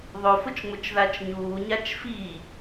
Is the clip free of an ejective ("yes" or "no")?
yes